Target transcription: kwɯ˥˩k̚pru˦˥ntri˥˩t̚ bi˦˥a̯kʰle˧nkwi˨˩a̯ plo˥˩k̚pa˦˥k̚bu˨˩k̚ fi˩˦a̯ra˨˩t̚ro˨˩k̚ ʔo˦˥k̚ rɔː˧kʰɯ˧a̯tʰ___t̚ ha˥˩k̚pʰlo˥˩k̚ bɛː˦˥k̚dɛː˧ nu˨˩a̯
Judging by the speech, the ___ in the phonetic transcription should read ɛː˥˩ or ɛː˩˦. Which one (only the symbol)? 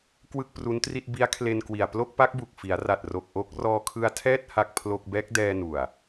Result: ɛː˥˩